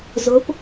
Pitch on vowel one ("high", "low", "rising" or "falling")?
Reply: rising